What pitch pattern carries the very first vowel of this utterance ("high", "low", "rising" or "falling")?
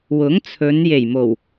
rising